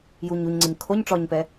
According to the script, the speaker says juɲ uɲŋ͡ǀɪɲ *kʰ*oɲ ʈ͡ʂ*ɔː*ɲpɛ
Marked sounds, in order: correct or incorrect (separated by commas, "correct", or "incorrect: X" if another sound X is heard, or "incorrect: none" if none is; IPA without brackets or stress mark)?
correct, incorrect: ɔ